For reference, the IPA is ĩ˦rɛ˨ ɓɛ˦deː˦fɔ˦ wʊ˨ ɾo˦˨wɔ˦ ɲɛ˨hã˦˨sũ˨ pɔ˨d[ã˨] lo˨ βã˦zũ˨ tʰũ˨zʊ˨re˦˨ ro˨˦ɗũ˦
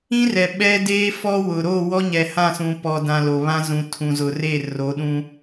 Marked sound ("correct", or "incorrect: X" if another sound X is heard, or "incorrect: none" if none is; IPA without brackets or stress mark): correct